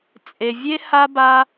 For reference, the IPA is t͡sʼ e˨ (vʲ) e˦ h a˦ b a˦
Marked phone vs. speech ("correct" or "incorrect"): correct